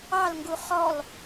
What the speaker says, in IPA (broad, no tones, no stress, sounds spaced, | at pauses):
ɑ l ŋ ɡ u χ ɔ l